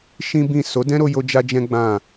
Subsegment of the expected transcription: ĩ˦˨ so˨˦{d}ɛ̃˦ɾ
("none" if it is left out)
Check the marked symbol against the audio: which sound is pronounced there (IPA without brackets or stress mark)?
d